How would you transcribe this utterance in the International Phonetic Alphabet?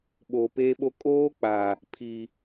ɓ oː˨ p eː˦ ɓ o˦ kʼ oː˦ k͡p a˨ | pʰ i˨

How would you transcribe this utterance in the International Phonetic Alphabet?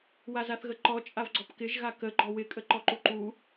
w a z a θ ɣ ə ǃ ɔ t͡ʃʼ a v ɡ͡ǀ ɔ p k ɪ ʒ ɣ a k ə ɡ͡ǃ ɔ w ɪ kʼ ə ǃ ɔ ǃ u ǃ u

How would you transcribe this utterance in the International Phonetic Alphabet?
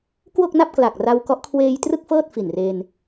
k w o˥˩ k̚ n a˥˩ p̚ k l a˨˩ k̚ r a˧ w k ɔ˦˥ ʔ kʰ w eː˧ j t r ɯ˥˩ k̚ f ɤː˥˩ t̚ f i˨˩ n r e˧ n

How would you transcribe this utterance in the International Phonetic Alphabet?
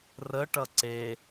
r ə ʈ ʌ ǀ e

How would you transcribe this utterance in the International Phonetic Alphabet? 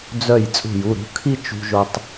d͡z œ˧˩ j t͡sʼ ṳ˧˩ j u˩˧˩ ɾ ṳ˩˧˩ kʰ i˥˧ t͡ʃ ṳ˧ ʒ o˧ tˤ

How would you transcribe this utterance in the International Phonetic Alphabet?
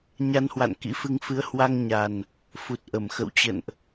ɲ a˧ n h w a̰˧˨ n k ḭ˧˥ f ɨ˧ ŋ f ɨ˨˦ ə̯ h w a˧ ŋ ɲ a˨˩ n | f u˨˩ t̚ ʔ ə˧˩ m x ə̰˧˨ w t͡ɕ ə̰˧˨ n ʔ

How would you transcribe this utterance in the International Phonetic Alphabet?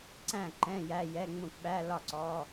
ǀ æ̃˥˩ ǃ ɛ̃˧˥˧ j æ˧˥˧ j ɛ˧˥˧ ŋ͡m ũ˥˩ k ɓ æ˧˥˧ l ɒ˥˩ ǀ ɔ˧˥˧

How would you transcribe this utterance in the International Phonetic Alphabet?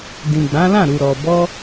d ĩ˨ ɡ͡b ã˨˦ l ã˦˨ ɾ u˨ ɾ ɔ˨ b ɔ˧

